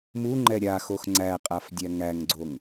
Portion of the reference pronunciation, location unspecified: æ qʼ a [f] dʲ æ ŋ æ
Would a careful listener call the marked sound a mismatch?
no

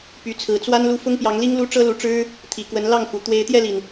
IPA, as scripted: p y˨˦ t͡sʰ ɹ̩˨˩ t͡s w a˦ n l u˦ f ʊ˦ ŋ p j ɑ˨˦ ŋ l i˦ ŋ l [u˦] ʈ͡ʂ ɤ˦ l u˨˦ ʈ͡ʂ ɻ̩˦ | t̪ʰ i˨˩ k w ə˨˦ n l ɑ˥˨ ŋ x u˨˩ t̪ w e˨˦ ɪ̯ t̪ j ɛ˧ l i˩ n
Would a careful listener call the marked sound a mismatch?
no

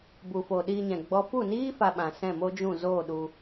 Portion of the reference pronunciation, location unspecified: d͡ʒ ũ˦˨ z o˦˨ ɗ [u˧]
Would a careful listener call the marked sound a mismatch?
no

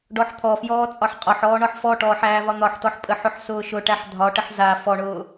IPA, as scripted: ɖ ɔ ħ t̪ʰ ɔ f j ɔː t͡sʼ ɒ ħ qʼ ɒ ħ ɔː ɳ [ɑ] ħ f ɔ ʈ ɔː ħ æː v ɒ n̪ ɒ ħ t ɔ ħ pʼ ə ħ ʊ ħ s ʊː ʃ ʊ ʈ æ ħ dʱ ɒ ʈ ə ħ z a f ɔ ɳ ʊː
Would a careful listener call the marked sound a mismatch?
yes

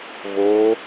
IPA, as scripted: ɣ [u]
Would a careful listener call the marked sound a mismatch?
yes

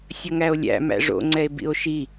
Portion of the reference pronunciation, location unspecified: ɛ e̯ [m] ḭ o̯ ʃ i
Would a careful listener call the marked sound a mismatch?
yes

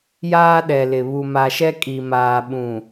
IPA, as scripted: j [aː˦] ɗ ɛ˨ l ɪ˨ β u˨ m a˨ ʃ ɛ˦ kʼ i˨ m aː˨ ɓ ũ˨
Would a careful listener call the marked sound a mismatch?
no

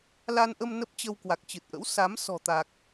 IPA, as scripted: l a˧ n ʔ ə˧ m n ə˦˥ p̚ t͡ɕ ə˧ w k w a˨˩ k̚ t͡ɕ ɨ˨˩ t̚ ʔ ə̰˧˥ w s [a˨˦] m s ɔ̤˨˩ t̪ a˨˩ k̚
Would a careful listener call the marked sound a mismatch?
no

